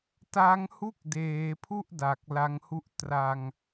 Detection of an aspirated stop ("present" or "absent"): present